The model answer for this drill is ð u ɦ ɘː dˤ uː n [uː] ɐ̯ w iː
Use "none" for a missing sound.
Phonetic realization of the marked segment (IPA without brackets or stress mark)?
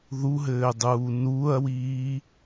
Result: uː